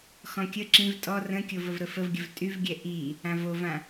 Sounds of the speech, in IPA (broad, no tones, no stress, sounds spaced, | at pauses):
x ɔ̃ kʲ ə ǁ ĩ v tʼ ɔ r ə̃ kʲ o v ə v ɾ ə f ə v ɡʲ ə v tʼ y v ɡʲ ɛ ʔ i | ã v o v ã